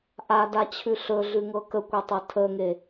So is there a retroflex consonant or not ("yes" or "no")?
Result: no